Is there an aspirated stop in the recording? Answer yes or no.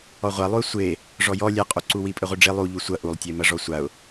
no